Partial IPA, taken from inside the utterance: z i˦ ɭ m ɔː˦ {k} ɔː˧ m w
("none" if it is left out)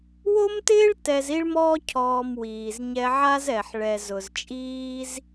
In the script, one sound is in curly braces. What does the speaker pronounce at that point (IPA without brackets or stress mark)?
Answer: cʰ